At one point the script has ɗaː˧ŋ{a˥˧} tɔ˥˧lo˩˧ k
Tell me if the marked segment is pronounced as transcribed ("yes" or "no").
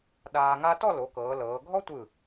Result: no